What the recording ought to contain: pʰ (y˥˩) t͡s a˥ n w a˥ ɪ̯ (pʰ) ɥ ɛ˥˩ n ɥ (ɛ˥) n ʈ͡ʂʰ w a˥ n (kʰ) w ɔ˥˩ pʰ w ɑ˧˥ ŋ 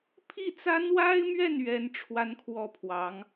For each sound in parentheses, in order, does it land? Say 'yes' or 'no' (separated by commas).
no, no, yes, yes